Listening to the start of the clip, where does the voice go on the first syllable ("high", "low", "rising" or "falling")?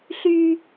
high